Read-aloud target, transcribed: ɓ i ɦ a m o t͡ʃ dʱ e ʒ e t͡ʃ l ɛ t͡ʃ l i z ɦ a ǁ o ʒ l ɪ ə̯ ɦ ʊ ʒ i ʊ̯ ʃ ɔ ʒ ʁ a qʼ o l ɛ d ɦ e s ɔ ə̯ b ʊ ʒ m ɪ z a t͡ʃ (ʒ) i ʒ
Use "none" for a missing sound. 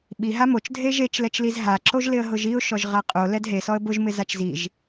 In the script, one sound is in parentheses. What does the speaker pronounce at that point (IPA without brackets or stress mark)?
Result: z